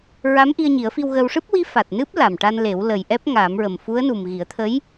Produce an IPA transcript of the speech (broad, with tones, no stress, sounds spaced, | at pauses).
ɹ a˧˥ m ʔ i˧ ə̯ ɲ i˨˩˦ ə̯ f i˧ w ɣ ə˧ w ʂ ɨ˦˥ p̚ w i˧˥ f a˨˩ t̚ n ɨ˦˥ p̚ l a˨˩ m ʈ a˧ n l e˨˩˦ w l ə˨˩ j ʔ ɛ˦˥ p̚ ŋ a˨˩˦ m ɹ ə˨˩ m f u˧˥ ə̯ n u˨˩ m ɣ i˨˩˦ ə̯ t̪ʰ ə˧˥ j